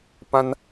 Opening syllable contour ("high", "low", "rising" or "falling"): high